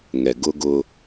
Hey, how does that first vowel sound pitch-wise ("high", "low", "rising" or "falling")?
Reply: low